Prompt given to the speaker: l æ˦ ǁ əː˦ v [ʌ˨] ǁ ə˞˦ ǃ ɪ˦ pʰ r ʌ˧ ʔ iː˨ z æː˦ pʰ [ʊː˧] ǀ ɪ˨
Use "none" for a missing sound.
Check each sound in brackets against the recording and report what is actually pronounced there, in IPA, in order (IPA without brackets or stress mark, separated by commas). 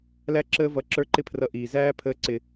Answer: ʌ˧, əː˧